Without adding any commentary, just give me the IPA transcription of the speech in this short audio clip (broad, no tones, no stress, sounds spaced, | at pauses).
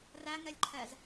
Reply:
r æ ŋ ɛ lʲ ǃʰ ɛ z